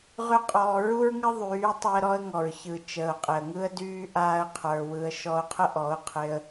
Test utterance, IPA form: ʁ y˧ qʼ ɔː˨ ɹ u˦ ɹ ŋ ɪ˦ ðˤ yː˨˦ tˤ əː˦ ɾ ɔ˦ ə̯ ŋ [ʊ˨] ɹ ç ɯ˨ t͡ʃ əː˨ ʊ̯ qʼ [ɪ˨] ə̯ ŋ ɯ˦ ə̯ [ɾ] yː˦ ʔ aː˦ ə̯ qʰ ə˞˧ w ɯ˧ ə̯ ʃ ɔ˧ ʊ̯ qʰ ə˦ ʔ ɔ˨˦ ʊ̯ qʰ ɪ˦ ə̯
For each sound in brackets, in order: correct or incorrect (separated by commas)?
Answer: incorrect, correct, incorrect